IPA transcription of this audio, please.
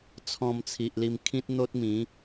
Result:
t͡sʰ ɔ̃˧ m t͡sʰ i˨ ʔ l i˧ m kʰ ĩ˦ t̚ n̪ o˦ t̚ m ĩ˨˦

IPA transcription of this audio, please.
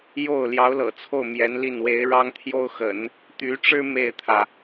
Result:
j o˥˩ ʊ̯ l j ɑ˧˥ ʊ̯ l ɤ̰˨˩ t͡sʰ o˥˩ ʊ̯ m j ɛ˧˥ n l i˥˩ n w e˧˥ ɪ̯ ɻ ɑ˥ ŋ t̪ʰ j o˥ ʊ̯ x ə̰˨˩˦ n | t̪ y˧˥ ʈ͡ʂ ɻ̩˥ m e˥˩ ɪ̯ t̪ʰ ä˩

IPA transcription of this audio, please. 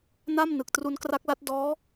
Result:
n a˥˩ m n ɯ˨˩ k̚ t r u˦˥ n k r a˦˥ k̚ l a˦˥ t̚ d ɔː˦˥

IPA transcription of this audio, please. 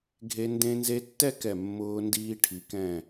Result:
ɡʱ e˧ n d ẽ˧ n z e˧ tː ɛ˥˧ k ɛ˧˩ mː ʊː˧ n d iː˧ ʈʰ i˩˧ k ɛ̃˧˩

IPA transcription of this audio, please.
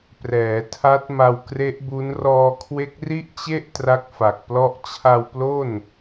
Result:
p r ɛː˩˦ tʰ a˦˥ t̚ m a˧ w k r e˦˥ ʔ b u˦˥ n r ɔː˧ kʰ w e˦˥ k̚ r i˥˩ ʔ t͡ɕ e˥˩ ʔ t r a˥˩ k̚ f a˨˩ k̚ p l ɔ˥˩ ʔ t͡ɕʰ a˧ w p l o˥˩ n

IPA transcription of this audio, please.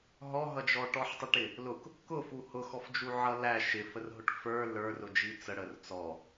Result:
ɦ ɔ ɦ ʌ d͡ʒ ɔ ʈ ɔ ħ tˤ ɪ ʈ ɪ | l ʊ k | k ʊ f u h ʊ x ɔ f d͡ʒ u ʕ ʌ l æ ʃ ɪ f ə r ɦ ʊ ʈ f ə˞ l ə˞ r ʊ d͡ʒ i t͡s ə ɽ ə r t͡s ɔ

